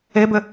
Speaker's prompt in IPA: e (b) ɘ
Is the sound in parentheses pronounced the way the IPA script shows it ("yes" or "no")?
yes